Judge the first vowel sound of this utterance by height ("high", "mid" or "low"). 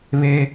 mid